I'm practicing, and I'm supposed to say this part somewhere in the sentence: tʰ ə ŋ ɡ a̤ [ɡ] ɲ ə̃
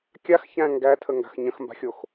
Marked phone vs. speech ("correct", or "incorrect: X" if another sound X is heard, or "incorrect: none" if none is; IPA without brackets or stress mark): incorrect: x